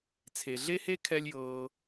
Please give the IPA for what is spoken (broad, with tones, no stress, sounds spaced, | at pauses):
t͡sʰ e˨ ɮ e˦ h e˦ kʰ ɛ˦ lʲ j ɤː˧